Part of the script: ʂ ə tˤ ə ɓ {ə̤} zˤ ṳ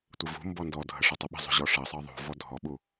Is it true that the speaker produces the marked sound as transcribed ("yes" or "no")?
yes